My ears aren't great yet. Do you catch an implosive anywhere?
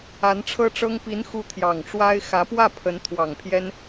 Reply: no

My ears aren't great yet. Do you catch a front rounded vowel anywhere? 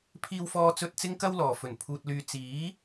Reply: yes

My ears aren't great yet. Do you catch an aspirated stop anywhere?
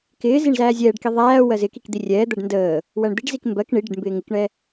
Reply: no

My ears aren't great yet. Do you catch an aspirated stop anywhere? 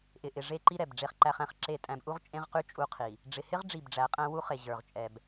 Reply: yes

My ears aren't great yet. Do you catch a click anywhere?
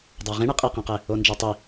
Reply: no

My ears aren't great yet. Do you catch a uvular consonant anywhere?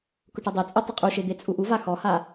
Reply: yes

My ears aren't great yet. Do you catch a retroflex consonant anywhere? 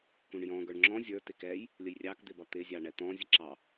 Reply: yes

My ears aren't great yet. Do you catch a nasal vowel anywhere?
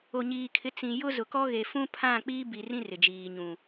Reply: yes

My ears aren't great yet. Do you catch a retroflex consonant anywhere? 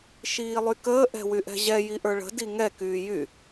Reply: yes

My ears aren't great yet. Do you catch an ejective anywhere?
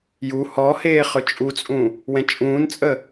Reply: yes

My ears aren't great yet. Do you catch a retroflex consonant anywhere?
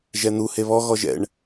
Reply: yes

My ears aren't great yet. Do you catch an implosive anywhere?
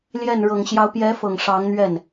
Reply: no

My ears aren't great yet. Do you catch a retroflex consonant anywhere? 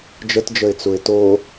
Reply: no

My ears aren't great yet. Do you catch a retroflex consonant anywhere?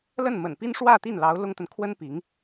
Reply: yes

